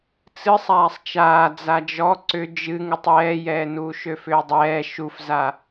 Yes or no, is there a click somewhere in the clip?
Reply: yes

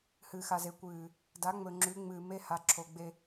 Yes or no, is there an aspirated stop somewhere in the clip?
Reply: yes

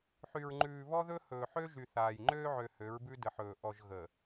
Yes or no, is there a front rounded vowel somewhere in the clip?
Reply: yes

